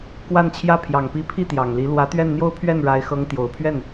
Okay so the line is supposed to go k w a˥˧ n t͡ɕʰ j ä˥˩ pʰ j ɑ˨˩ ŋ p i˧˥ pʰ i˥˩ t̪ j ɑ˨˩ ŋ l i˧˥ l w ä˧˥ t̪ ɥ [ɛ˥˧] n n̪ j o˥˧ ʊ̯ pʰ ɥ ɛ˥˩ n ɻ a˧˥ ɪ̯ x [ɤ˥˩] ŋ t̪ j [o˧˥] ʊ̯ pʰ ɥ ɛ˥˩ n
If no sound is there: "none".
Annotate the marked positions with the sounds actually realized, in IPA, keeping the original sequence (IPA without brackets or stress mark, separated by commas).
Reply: ɛ˥˧, ɤ˧˥, o˨˩